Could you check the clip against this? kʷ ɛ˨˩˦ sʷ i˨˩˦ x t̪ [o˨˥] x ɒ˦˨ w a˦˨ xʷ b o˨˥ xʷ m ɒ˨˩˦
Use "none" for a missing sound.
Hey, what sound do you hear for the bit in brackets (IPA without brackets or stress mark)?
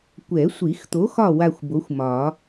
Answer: o˨˥